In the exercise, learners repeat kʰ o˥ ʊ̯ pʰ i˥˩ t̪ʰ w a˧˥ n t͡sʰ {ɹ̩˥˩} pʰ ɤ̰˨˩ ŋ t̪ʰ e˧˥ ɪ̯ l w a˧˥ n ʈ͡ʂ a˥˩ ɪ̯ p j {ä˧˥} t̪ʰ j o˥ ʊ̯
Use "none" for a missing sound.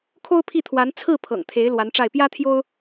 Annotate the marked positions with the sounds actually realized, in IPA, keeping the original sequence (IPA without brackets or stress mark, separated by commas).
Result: ɹ̩˥˩, ä˥